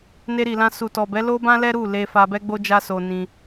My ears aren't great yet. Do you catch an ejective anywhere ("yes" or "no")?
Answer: no